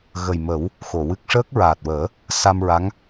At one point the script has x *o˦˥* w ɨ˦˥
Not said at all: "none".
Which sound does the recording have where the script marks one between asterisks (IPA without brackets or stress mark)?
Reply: o˨˩˨